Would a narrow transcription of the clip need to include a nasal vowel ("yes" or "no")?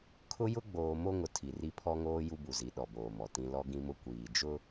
yes